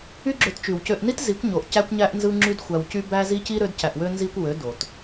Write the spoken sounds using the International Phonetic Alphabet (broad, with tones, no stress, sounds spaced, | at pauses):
y˦ ɡ͡ǁ ø˧ t t͡ʃ y˨ w c ø˧ ʔ n i˦ t z i˨˦ kʷ ɲ o˨ ʔ c æ˦ kʷ ɲ æ˦ ʔ n z ɯ˦ ŋ͡ǁ y˦ d xʷ æ˧ w c y˦ b æ˦ z i˦ c i˦ ɾ ø˦ d c æ˧ ʔ w ø˦ n z i˦ kʷ w ø˨˦ d o˨ t